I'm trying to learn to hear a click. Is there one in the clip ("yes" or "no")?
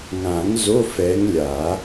no